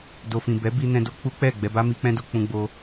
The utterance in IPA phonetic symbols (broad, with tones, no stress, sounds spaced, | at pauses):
d o˨ f ĩ˨ b ɛ˨˦ b i˦ n ɛ̃˦ d o˦ k͡p u˦ k͡p ɛ˦˨ ɡ͡b ɛ˧ b a˦ m i˧ k͡p ɛ̃˦ d o˧ k͡p ũ˧ ɡ͡b o˧